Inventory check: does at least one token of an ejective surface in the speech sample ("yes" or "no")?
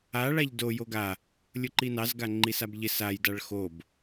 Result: no